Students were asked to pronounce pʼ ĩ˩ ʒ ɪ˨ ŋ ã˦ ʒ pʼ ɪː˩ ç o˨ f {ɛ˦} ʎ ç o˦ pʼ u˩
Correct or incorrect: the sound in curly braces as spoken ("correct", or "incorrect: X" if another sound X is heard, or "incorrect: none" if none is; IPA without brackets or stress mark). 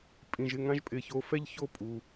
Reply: correct